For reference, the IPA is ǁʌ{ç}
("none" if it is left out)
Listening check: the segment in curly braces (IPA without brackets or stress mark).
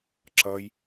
j